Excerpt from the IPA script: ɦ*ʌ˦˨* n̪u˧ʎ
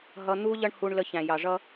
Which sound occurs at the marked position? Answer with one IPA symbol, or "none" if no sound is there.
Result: ʌ˧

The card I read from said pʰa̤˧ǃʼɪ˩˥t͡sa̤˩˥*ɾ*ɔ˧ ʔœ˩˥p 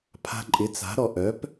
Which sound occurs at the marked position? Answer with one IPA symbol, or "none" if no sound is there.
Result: ɾ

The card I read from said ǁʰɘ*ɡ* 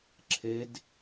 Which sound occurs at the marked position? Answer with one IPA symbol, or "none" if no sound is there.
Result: d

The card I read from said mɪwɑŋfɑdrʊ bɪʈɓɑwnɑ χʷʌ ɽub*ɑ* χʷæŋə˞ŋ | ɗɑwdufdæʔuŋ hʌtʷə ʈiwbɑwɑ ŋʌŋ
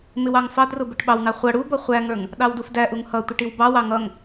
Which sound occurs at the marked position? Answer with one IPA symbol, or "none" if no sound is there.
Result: ʌ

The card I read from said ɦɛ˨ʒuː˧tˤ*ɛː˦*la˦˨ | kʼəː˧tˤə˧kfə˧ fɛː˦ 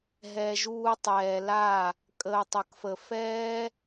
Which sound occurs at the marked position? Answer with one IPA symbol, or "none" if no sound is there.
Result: ɛː˨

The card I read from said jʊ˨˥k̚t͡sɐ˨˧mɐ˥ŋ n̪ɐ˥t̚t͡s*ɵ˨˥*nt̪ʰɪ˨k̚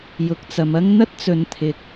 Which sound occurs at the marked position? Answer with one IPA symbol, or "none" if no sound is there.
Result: ɵ˨˧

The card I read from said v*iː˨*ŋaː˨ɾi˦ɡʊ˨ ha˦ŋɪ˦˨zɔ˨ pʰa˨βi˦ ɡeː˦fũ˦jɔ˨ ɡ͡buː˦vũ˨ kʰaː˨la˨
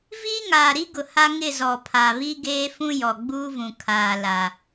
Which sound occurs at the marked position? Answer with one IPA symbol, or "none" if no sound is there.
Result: iː˦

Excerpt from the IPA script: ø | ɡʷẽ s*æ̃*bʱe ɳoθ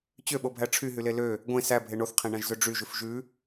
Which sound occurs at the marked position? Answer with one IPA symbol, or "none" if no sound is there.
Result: æ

